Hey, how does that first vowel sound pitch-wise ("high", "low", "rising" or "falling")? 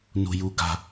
low